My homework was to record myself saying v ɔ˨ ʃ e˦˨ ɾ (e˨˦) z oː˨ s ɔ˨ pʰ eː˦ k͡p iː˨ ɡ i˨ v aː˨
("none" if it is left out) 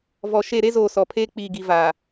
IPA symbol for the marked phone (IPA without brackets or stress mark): e˦